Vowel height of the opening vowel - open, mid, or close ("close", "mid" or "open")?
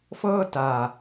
mid